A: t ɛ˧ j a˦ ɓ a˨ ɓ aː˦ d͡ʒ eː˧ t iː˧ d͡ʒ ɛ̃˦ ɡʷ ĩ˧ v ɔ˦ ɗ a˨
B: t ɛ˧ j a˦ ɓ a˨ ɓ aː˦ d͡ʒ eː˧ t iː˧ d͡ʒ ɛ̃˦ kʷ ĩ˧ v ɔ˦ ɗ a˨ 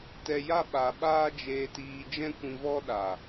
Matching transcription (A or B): B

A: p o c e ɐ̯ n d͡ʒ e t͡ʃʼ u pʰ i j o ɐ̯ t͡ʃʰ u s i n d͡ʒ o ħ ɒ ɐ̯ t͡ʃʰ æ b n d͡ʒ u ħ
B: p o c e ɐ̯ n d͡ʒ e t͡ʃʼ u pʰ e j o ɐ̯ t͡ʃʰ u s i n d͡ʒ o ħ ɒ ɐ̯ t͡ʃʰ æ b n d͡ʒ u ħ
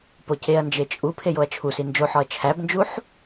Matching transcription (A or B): B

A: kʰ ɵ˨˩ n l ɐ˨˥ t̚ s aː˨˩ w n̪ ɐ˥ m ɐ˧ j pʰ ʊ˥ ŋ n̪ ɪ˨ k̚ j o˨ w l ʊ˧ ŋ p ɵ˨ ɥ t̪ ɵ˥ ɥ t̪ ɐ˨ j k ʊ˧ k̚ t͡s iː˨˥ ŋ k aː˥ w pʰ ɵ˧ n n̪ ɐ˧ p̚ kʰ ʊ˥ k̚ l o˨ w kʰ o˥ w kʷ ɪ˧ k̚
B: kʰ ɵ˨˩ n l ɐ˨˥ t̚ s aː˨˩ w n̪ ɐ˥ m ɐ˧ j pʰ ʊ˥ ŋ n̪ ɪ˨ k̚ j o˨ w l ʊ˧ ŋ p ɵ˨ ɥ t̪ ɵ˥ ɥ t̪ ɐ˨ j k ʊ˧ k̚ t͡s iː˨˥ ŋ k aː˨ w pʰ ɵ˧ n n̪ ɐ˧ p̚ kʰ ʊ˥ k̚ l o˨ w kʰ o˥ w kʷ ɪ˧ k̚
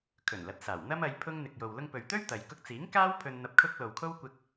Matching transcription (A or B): A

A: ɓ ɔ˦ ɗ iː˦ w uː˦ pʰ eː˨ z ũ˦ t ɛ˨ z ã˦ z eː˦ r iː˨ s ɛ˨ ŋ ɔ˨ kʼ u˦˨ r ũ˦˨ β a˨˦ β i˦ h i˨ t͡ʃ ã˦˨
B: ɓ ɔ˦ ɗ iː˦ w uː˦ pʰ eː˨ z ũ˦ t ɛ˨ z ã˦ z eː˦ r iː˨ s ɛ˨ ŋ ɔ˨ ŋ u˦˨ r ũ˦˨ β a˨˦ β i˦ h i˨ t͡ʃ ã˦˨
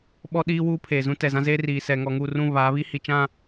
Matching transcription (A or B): B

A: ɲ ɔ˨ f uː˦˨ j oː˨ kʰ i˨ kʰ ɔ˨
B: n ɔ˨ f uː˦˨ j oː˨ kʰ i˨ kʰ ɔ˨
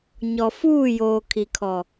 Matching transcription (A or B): A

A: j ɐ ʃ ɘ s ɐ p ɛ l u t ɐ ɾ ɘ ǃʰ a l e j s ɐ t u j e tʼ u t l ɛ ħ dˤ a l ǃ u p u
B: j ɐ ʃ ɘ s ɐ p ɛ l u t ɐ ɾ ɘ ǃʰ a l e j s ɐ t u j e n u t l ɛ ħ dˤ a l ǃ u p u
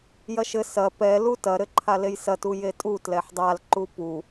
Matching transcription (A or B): A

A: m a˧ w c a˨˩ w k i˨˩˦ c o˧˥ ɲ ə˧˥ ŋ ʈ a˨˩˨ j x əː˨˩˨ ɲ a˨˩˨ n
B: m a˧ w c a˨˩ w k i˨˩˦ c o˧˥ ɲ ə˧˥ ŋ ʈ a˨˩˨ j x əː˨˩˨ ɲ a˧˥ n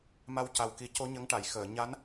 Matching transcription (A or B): B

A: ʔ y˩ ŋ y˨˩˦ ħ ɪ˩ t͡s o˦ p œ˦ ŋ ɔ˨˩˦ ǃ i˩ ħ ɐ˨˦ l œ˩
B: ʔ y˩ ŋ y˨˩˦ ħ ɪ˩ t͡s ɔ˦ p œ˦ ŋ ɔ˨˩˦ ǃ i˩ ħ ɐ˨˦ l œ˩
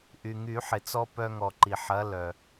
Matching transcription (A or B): B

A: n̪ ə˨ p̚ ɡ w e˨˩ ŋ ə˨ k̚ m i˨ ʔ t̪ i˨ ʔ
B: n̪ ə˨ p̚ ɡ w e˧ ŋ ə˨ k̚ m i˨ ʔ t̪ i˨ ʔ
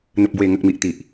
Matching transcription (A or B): A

